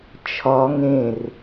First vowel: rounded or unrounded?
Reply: rounded